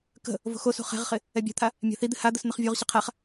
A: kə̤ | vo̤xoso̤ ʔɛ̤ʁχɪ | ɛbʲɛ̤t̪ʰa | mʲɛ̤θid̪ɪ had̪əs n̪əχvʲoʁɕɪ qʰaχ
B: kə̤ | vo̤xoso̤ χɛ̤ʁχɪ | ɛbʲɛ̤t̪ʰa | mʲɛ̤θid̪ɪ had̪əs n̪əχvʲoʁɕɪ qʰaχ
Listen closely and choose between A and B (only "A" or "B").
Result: B